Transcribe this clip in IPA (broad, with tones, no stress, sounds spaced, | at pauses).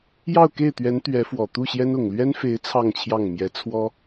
j ɑ˥˧ ʊ̯ k e˥˩ ɪ̯ t̪ ɥ ɛ˧˥ n t̪ ɥ ɛ˧˥ f w ɔ˨˩ t̪ u˥˩ ɕ j ɛ˥ n ʊ˨˩ ŋ l ɥ ɛ˥ n f e˧˥ ɪ̯ t͡sʰ ɑ˥˧ ŋ t͡ɕʰ j ɑ˥˩ ŋ m j ɛ˧˥ t͡sʰ w ɔ˥